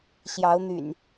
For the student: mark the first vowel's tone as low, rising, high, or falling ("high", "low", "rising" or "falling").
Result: rising